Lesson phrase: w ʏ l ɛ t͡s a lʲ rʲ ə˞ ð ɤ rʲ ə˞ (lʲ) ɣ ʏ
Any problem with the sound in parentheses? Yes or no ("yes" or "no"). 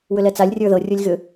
no